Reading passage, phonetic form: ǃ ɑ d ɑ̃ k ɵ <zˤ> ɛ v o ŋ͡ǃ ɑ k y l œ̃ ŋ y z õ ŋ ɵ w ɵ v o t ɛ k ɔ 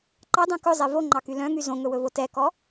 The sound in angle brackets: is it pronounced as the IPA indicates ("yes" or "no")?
yes